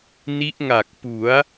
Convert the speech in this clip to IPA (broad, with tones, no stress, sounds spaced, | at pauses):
n i˦˥ ʔ ŋ a˨˩ k̚ p u˩˦ a̯